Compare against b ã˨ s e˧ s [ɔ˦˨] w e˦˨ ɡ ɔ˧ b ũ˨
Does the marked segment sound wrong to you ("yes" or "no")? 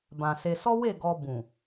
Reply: yes